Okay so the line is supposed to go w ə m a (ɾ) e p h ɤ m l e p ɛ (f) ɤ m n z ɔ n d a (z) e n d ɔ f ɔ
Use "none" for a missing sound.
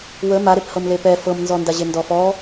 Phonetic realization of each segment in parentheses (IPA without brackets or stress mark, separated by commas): ɾ, f, ʑ